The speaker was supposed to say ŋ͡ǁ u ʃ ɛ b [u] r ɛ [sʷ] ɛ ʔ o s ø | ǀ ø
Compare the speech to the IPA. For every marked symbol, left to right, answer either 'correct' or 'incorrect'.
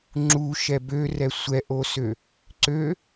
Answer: incorrect: ø, correct

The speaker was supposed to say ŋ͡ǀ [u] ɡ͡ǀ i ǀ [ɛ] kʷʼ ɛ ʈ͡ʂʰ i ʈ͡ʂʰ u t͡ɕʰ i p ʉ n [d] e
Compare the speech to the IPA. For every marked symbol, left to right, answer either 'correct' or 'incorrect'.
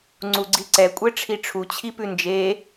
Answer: correct, correct, incorrect: d͡ʒ

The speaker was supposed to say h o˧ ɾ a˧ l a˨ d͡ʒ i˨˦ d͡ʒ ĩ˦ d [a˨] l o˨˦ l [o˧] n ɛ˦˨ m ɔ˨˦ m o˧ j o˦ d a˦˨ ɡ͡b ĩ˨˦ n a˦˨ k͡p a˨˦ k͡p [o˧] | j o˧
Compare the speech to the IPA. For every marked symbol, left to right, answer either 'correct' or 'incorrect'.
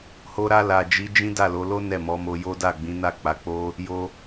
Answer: incorrect: a˦˨, incorrect: o˦, incorrect: o˦

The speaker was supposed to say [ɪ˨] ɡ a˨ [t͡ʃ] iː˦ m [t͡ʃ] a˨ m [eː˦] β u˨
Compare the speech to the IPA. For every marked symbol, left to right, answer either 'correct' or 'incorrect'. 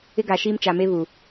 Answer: incorrect: ɪ˦, incorrect: ʃ, correct, incorrect: e˦

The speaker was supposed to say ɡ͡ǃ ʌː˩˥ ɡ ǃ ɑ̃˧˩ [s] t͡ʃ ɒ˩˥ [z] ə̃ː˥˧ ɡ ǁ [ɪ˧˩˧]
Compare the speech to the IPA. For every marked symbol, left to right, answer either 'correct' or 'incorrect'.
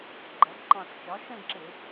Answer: correct, incorrect: ʃ, correct

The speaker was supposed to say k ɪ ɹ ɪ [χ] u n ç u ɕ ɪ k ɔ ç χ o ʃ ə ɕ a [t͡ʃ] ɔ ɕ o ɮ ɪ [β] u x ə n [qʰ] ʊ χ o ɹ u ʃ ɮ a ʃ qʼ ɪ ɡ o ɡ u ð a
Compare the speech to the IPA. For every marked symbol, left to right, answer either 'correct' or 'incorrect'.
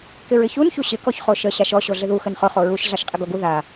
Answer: incorrect: ç, incorrect: ʃ, incorrect: ð, incorrect: χ

